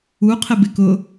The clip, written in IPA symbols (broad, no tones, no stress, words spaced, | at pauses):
u qʰɪbɪkʊ